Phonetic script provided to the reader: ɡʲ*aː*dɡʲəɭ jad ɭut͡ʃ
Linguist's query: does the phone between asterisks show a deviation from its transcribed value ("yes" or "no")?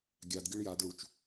yes